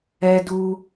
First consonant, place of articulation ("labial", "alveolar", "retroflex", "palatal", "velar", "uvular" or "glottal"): alveolar